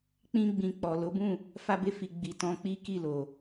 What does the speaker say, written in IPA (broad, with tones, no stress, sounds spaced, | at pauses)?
k͡p ĩ˦ ɡ͡b ĩ˧ k͡p ɔ˨ l o˨˦ b ũ˦˨ | f a˧ b e˧ f i˨ ɡ͡b i˨ t ɔ̃˧ k͡p i˦ k i˦˨ l o˨